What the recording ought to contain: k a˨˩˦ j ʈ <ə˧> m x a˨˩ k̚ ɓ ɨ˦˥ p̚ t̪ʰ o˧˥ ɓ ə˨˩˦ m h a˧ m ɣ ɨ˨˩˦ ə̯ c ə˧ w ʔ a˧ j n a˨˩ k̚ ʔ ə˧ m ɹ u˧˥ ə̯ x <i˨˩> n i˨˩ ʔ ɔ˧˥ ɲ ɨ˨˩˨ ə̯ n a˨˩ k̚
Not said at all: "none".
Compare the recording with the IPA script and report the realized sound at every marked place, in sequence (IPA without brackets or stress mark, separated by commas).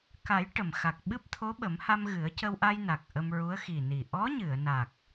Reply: ə˨˩˨, i˨˩